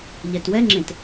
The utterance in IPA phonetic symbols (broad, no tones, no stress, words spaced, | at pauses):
ʎɛtwɛŋ͡ǁẽt